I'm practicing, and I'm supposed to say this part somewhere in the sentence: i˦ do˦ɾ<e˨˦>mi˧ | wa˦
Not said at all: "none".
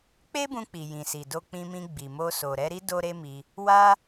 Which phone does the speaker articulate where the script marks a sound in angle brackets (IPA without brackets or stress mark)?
e˦